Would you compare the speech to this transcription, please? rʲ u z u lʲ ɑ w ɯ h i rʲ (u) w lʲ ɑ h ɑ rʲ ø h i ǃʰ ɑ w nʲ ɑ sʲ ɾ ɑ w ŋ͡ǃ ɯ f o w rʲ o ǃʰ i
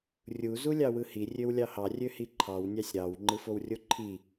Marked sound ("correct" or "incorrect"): incorrect